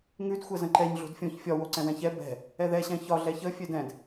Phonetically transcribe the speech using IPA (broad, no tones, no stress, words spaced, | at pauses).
ŋʉdxʷɛzə̃ ǃɛɲ ɮo̤dfʲõç fʲɒ woǀɛ̃wɛ̃çɛ bɛ̤ | ɛðɛɕɛ̃ çɒ ɮɛçəfʲɛd ɛ̃d